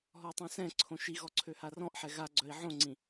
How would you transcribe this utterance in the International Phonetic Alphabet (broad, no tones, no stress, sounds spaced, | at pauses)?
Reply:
ɦ ɔ tˤ õ s ɛ̃ ǀʰ õ ʃ i ɣ ɔ ǀʰ ø h a r ɔ̃ ʔ ħ ɛ ɣ a ɡ͡ǀ œ i̯ ʕ õ ŋ͡ǀ ĩ